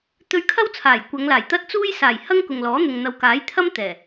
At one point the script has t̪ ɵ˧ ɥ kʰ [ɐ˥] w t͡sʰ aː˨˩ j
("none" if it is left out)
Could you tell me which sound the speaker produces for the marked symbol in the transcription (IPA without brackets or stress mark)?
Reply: ɐ˥